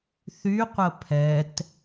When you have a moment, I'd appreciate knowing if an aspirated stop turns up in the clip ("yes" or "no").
yes